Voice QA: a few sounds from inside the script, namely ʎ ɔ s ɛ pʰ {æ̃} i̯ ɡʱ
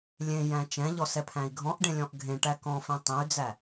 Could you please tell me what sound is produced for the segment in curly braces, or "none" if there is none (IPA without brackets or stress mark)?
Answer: æ̃